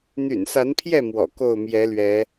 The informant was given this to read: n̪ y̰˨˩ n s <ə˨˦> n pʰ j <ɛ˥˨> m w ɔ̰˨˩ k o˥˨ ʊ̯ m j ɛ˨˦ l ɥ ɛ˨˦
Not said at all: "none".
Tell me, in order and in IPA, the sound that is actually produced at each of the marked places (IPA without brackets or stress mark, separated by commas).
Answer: a˨˦, ɛ˥˨